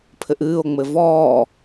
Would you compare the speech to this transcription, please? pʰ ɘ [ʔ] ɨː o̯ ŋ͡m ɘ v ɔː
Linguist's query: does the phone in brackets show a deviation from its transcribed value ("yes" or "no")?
no